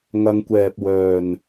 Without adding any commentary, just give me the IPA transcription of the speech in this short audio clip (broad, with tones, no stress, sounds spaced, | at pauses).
ŋ ɐ˧ ŋ kʷ ɛː˨ p̚ w œː˨˩ n